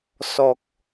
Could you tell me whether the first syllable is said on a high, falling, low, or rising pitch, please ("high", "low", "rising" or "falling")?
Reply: low